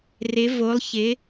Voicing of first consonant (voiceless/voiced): voiced